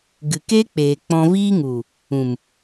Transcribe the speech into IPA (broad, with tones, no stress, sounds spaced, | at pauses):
ɡ ɨ˨ k e˦ k͡p eː˨ k͡p ɔ̃˧ v iː˦ ŋ u˨ | ũ˨ m